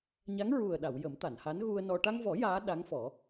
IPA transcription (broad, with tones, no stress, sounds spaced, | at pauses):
ɲ a˧˥ ŋ ɹ u˨˩ ə̯ ɗ a˨˩˨ w j ə˨˩˦ m t̪ a˨˩˨ n h a˧˥ n ɣ u˧ ə̯ n ɔ˧ ʈ a˧ ŋ v ɔ˨˩˦ j aː˧˥ ɗ a˧˥ ŋ f ɔ˨˩˦